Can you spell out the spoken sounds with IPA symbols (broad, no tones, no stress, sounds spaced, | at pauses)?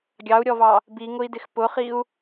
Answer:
ɡʲ ɑ u̯ ɾʲ ɔ v ɑ | b i ŋ ʊ i̯ d ɪ x p ʊ χ i u̯